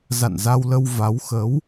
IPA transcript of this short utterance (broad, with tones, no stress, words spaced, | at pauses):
za̰˧˨nza˧wlə˧w va˨˦wxə˨˦w